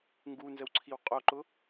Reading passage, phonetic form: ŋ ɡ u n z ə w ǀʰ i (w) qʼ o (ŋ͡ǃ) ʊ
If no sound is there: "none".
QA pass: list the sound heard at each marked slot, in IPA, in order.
w, ǃ

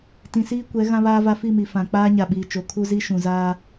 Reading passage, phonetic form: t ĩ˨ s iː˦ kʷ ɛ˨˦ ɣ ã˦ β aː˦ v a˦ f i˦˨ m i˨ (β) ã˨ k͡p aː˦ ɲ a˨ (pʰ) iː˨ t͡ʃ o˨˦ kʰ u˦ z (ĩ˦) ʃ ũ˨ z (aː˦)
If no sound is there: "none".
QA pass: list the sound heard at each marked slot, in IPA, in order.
f, ɓ, i˦, aː˦

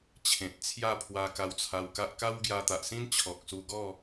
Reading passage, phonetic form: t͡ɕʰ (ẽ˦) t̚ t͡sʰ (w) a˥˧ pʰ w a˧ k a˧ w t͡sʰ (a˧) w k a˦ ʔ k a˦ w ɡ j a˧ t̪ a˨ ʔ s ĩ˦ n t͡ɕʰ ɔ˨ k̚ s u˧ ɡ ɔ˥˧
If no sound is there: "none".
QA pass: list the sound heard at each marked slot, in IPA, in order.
ẽ˨, j, a˧

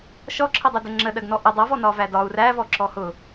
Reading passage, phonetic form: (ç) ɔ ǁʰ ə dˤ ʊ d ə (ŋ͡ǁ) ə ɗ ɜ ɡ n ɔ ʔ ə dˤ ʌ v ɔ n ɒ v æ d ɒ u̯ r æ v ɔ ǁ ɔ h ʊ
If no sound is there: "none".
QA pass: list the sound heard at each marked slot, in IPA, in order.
ʃ, ŋ͡ǁ

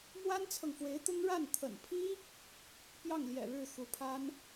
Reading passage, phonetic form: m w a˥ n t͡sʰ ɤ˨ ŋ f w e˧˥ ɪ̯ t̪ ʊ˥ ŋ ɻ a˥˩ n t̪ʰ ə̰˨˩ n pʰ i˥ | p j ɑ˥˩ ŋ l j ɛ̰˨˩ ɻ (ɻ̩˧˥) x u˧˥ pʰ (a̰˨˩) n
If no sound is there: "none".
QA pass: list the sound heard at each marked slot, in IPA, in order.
ɻ̩˥˩, a˥

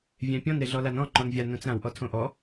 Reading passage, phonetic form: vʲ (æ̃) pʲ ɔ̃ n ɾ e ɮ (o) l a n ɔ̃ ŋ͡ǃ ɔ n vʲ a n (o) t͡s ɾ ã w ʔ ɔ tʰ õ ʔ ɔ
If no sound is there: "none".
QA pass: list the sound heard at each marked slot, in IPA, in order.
æ̃, ɔ, õ

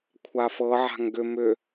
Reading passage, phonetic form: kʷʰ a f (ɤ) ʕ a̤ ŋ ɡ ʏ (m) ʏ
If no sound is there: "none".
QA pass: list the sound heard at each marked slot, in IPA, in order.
ɤ, m

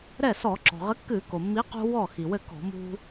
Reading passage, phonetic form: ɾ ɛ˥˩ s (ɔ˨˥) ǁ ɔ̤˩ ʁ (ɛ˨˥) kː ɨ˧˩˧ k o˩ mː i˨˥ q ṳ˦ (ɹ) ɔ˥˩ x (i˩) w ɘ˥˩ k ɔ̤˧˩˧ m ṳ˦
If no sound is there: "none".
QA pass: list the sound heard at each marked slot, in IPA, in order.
ɔ˧˩˧, ɘ˨˥, w, i˩

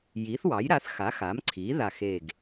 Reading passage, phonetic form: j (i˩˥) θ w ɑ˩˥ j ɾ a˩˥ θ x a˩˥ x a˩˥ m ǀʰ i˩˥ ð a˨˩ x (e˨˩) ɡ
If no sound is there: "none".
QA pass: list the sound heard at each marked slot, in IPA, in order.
i˩˥, e˨˩

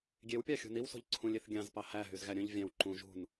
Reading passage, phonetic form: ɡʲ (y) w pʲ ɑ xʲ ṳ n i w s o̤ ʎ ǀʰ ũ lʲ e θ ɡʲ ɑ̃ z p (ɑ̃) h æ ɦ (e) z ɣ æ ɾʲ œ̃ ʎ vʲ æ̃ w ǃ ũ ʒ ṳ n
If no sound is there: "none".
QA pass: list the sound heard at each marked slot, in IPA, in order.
e, ɑ, y

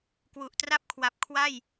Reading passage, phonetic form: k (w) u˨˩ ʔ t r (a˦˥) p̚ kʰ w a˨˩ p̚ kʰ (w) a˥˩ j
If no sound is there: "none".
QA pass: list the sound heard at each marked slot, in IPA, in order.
w, a˥˩, w

